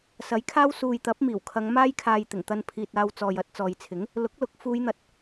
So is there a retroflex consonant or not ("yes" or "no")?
no